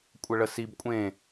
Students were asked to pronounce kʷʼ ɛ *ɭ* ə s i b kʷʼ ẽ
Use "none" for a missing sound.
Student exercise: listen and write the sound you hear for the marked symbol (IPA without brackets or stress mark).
ɭ